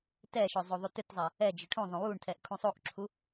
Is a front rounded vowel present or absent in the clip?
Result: present